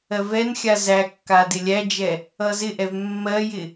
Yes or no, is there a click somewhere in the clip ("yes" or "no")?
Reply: no